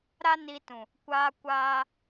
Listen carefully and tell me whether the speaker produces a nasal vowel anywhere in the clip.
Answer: yes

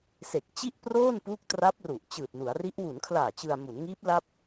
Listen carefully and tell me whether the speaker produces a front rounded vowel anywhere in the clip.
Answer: no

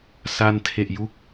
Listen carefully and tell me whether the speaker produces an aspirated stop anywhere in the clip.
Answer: yes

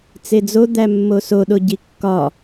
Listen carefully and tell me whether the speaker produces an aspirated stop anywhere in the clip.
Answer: no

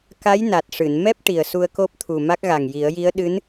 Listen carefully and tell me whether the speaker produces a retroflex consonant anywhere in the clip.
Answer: yes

